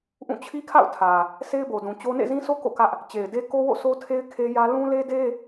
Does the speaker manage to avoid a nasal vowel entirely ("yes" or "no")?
no